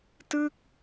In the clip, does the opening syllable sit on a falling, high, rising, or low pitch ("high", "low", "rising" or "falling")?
falling